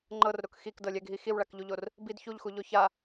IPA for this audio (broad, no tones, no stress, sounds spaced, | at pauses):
ŋ͡ǃ ɤ r ɾ o k x i k d ɤ lʲ ɛ ɡʱ i x i w ɭ a k ʎ u ʎ o r | b i d ç u ʎ x u ʎ o ç a